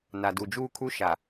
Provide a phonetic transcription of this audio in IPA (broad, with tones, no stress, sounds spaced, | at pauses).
n a˨ d u˨ d͡ʒ uː˦ kʰ u˦ ʃ a˨